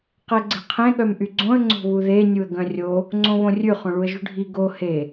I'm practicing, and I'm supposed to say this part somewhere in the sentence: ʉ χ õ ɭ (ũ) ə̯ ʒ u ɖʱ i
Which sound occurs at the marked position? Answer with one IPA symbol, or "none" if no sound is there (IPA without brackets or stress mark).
u